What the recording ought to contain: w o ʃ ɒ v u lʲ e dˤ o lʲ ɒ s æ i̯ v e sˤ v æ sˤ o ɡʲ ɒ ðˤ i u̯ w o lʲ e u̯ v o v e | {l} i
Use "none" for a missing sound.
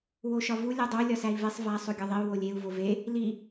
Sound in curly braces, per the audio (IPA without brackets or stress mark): l